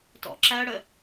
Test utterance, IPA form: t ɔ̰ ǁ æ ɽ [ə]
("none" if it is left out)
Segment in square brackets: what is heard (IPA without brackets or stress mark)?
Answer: ə